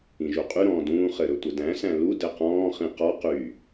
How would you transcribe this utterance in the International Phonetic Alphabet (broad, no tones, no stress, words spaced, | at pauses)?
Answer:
ĩʒuqʼy ɾɔ̃ːdũː χɘɾɵtʷɘdæ̃ sæ̃lu dɘqɔ̃ː χĩqɔ qy